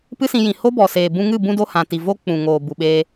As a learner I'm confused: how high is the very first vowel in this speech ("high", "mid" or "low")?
high